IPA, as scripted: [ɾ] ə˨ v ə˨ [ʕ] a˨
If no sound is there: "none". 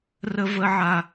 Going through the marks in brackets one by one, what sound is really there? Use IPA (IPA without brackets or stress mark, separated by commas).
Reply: r, ʕ